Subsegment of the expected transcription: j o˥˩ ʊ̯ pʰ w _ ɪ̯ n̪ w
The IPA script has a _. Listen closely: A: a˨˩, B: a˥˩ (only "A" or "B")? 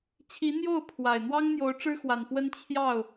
A